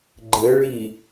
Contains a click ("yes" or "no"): yes